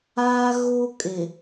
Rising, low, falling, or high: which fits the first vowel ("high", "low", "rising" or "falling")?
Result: high